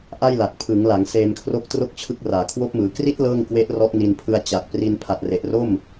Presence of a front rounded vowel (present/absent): absent